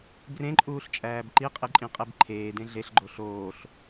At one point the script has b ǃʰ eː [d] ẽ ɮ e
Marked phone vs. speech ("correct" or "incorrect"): correct